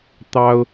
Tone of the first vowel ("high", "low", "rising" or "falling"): high